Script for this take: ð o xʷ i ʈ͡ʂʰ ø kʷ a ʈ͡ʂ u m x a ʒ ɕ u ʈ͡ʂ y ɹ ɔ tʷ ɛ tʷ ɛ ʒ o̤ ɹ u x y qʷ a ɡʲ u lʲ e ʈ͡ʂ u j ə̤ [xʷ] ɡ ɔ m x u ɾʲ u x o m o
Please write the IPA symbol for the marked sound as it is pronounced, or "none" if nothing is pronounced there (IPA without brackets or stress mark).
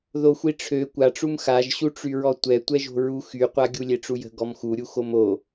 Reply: none